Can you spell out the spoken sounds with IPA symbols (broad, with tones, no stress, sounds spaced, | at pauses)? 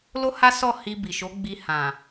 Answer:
l o˦ h a˦ s ɔ˦˨ h i˧ b i˨ ʃ o˨˦ ɡ͡b i˧ h ã˨